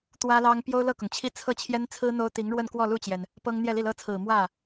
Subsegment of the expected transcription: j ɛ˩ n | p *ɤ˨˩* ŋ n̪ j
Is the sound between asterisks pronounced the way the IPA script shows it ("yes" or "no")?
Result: no